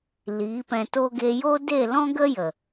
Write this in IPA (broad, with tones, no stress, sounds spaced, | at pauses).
l iː˨˦ p ɛ̃˧ t o˦ ɡ e˧ j o˦ d e˦˨ l ɔ̃˦ ɡ ə˦ j ə˨